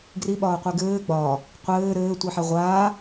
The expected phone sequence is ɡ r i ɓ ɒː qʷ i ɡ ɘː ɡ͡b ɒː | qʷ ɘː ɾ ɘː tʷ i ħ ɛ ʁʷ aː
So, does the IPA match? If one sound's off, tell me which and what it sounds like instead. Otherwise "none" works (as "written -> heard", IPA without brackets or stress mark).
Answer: none